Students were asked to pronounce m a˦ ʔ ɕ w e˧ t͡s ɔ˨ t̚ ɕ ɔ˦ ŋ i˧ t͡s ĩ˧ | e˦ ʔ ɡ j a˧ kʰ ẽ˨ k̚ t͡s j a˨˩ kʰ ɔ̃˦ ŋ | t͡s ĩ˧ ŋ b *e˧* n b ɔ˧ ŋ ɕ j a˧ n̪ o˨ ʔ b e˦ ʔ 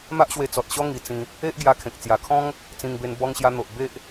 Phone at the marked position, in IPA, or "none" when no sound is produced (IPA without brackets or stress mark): e˧